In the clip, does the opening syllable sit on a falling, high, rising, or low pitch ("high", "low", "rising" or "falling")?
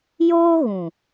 high